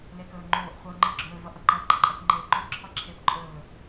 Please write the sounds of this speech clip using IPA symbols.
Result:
l e k ɵː ŋ͡ǃ oː ʔ χʷ ʌː ŋ͡ǃ ɯ ɡ͡ǁ ɵː v ʌ ʔ ʌ ǃ ʌ ɡ͡ǃ ʌ ǃʼ ɛ k ŋ͡ǃ eː ɡ͡ǃ o ǁʰ ɒ ǁʰ eː p ǃʼ ɵː

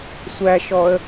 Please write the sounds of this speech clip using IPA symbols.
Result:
sʷ æ ʃ ɔ ə̯

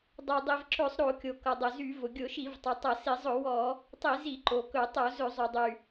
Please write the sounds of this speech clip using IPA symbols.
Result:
dˤ o˩ dˤ i˩ v ǁ ɵ˧˩˧ sˤ ɾ o˧˩˧ kʲ o˩ k ʌ˩ dˤ ɵ˩ z y˧˩˧ v ʊ˩ ɡʲ ʊ˧˩˧ ʃ i˧˩˧ v tˤ o˩ tˤ ʌ˧˩˧ s i˧˩˧ zˤ ʊ˧˩˧ w ɔ˧˩˧ | tˤ i˧˩˧ z i˧˩˧ ǃ o˩ k ɵ˧˩˧ tˤ o˧˩˧ z ɵ˧˩˧ zˤ y˩ dˤ y˩

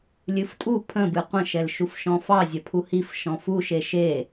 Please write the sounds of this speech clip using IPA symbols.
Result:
lʲ ɨ f tʼ u pʰ ə̃ b ɨ qʷ ə̃ ʃ ɛ l ʃ u f ʃ ɔ̃ f ɑ zʲ ɐ pʰ u h i f ʃ ɔ̃ f u ʃ e ʃ e

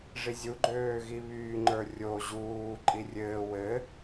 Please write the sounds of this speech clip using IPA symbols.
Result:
ʐ i zʲ u ɡ͡ǃ øː ɣ i β yː ŋ͡ǃ ə˞ rʲ o ʑ uː ǃʼ i rʲ ɘː w ɘ

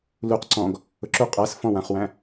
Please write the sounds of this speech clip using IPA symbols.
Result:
l u q ǀ ɔ̃ ɡ | ʊ ǁ u qʼ æ s f ɔ̃ w ã χ w æ̃

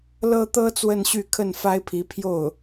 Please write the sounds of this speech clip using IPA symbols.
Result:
l ɤ˥ t̪ ɤ˥ t͡s w ə˥˧ n ɕ y˥˧ kʰ ə˥˩ n f a˥ ɪ̯ pʰ i˧˥ pʰ j o˥˩ ʊ̯

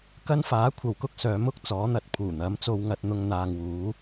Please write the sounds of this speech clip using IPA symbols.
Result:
k ɐ˥ n f aː˨˥ kʷʰ ɐ˨ w k ʊ˥ k̚ s œː˨˥ m ʊ˧ k̚ t͡s ɔː˨˥ n̪ ɐ˧ t̚ pʰ uː˨˩ n̪ ɐ˨˥ m t͡s o˧ w ŋ ɐ˧ t̚ n̪ ʊ˧ ŋ n̪ aː˨ ŋ w uː˨˥

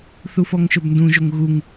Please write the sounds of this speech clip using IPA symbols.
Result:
θ u f ɔ ŋ ʃ ɵ b n d ũ ʒ o ŋ ɣ u ŋ

